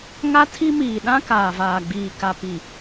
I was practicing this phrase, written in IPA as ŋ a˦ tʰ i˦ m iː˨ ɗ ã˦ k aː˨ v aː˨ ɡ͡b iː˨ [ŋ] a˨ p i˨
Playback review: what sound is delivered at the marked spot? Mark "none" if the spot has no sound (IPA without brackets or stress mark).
k